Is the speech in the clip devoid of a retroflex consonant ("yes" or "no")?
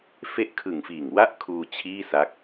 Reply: yes